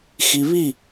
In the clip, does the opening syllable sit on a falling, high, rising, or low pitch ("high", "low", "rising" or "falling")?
low